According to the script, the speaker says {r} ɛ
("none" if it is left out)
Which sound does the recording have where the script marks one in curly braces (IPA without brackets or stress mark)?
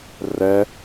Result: r